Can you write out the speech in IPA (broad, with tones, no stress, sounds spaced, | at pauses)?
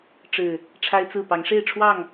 ʈ͡ʂ ɻ̩˨˩ | ʈ͡ʂʰ a˦ ɪ̯ t͡s ɹ̩˥˨ p ɑ˨˦ ŋ ʂ e˥˨ ɪ̯ ʈ͡ʂʰ w ɑ˥˨ ŋ